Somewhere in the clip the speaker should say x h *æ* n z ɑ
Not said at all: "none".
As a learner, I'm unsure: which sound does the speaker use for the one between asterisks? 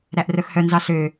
œ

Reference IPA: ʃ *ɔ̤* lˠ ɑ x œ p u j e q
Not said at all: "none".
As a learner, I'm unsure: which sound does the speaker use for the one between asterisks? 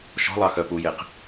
ɔ̤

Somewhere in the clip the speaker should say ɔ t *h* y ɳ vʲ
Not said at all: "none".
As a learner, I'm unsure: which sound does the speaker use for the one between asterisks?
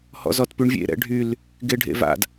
p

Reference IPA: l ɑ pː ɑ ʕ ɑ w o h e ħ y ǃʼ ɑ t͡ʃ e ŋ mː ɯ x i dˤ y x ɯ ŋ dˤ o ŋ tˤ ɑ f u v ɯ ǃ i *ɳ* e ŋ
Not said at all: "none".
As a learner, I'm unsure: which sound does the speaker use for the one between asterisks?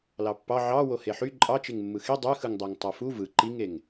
ŋ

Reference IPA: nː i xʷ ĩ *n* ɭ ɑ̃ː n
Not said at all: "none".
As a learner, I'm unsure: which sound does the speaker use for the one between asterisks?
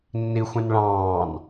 n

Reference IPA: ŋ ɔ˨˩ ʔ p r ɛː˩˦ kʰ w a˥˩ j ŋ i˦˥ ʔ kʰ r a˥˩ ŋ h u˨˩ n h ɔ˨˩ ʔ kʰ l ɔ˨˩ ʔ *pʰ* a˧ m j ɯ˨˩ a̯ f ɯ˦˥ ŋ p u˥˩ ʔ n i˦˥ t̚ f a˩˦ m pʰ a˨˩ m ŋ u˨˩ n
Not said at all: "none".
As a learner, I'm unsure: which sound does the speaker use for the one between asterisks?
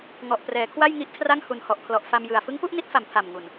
f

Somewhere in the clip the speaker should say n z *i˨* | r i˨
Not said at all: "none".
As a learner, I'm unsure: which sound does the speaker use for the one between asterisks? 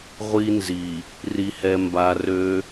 i˨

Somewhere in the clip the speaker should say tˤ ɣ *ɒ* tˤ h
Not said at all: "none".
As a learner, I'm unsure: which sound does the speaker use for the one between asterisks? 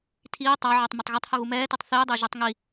ʌ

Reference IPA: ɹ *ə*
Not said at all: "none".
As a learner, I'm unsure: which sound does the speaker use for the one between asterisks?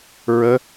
ə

